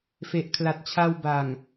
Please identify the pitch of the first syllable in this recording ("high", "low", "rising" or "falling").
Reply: low